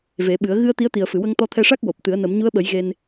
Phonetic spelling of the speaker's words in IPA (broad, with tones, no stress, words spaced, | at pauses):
ve˨˩˦ɓɨ˨˩˦ə̯ ɣɨ˧ə̯ t̪i˧˥ə̯t̪i˨˩ə̯fɨ˨˩˨ wə˧ŋt̪ɔ˧t̪ʰɛ˧ʂa˦˥k̚ wo˨˩p̚t̪ɨ˨˩˦ə̯ nə˨˩˦mɲu˧˥ə̯ɓə˨˩˦j ɣe˧n